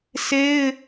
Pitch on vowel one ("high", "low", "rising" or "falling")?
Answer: high